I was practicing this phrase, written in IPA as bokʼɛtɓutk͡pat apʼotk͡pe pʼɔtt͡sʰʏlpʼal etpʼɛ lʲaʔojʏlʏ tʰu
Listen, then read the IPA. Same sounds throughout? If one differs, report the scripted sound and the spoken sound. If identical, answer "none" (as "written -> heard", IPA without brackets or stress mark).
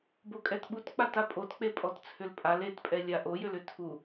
none